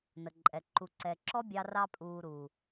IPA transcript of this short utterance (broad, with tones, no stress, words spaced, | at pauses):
nə˨ǃʼɛ˨ ǃu˨ǀɛ˨ǁɔ˦bʲɑ˧ rɑ˧pʼuː˨ ɾu˨